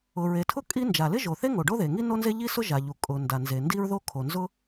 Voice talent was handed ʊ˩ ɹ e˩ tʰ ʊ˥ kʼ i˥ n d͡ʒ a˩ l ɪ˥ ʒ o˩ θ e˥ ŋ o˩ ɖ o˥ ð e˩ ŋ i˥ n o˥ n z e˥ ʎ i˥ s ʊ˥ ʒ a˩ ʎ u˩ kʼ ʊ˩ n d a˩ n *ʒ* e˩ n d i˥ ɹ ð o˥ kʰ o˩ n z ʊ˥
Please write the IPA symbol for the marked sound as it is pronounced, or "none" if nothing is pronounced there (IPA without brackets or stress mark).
z